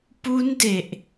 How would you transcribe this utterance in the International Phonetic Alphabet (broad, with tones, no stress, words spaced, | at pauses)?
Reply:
pu˦˥nde˨˩ʔ